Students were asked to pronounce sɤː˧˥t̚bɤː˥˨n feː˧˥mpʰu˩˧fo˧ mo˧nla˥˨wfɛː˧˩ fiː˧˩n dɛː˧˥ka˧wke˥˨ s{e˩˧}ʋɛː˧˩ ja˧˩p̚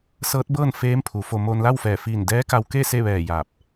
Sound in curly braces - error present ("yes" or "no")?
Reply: yes